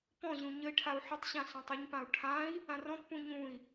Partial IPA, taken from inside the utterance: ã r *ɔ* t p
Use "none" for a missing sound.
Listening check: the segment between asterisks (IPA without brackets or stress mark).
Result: ɔ̃